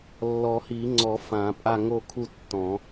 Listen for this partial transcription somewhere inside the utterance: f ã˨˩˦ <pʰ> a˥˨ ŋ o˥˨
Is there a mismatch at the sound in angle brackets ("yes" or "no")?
yes